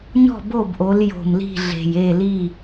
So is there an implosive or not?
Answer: no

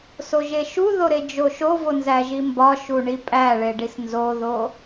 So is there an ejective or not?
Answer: yes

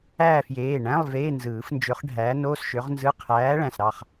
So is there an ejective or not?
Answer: no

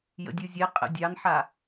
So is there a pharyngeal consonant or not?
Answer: yes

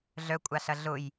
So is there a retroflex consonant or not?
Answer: no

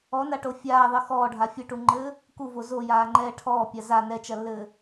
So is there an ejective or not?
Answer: no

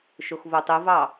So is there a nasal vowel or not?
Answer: no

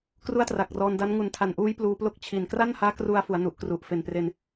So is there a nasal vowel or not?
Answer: no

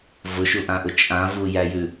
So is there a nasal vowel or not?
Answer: yes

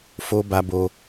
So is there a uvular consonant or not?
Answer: no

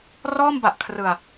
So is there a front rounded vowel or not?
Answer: no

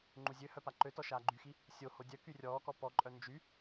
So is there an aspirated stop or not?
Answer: no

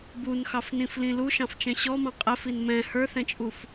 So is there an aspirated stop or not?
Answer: no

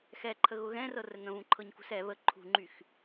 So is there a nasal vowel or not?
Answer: yes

